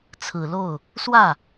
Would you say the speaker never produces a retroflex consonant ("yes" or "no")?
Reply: yes